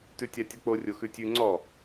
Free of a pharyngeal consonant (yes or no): yes